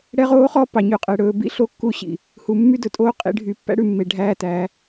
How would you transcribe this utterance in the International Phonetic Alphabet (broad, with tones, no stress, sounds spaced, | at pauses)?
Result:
ɽ ɛ˦ ʁ oː˦ χ ɔ˦ p ɑ˨ ɲ ʉ˨ qʼ ɛ˨ ɽ ɵː˨ b ḭ˦ ɬ o˦ kː u˦ ɕ ḭ˨ | h u˨ mː y˦ d ɵ˨ tʼ oː˦ qʼ ḭ˨ ɖʱ y˨ pː æ̰˦ ɽ ʉ˨ mː e˨ ɖʱ æː˦ t æ˨˦